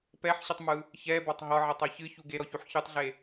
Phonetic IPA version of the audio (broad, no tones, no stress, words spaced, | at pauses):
pɛħɕɨtˤmɯ | çɛbɒtˤ ɦɒʕɛtˤɒ çɨçu ɡeɾɔçuħ çɯtˤɮe